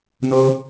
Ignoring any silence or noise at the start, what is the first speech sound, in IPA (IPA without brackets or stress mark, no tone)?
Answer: n